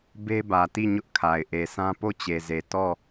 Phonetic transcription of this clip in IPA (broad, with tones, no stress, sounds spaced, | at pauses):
b e˦ b ä˨ t i˦˨ ɲ ʊ˦ ʔ kʰ a˨ ɪ̯ ʔ e˨ sʰ ã˦ p o˦˨ t͡ɕ e˨ z e˨ t ɔ˦˨